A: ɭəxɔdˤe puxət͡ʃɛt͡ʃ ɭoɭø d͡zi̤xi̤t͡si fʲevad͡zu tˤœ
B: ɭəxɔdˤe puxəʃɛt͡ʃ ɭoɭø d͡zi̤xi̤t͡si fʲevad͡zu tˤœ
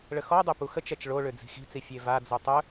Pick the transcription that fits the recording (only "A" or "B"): A